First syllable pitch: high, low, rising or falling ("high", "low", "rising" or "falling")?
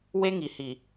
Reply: high